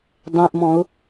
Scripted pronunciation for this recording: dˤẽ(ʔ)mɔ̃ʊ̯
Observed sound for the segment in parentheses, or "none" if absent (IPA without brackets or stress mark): ʔ